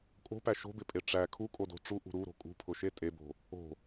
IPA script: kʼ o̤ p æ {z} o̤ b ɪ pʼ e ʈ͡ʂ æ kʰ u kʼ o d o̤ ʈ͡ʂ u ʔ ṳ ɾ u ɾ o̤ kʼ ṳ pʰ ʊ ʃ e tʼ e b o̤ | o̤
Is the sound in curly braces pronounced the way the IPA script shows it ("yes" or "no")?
no